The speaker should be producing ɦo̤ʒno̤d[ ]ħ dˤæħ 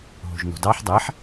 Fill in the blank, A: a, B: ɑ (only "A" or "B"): B